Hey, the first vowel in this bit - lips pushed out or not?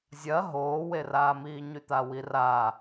no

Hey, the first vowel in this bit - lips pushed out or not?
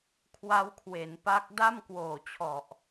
no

